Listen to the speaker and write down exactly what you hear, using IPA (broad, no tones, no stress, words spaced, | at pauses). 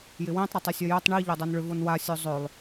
jɪwĩtˤ ɾotˤɪsʲœjøtˤ ɳi ʎodˤonɭʏ vonwa sʲozˤølˠ